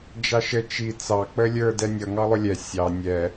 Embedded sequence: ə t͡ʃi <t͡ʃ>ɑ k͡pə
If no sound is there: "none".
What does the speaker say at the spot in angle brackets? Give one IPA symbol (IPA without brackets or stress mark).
t͡s